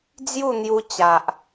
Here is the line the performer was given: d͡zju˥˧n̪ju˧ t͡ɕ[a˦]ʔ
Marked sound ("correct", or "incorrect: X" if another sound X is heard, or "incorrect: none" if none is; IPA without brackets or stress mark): incorrect: a˨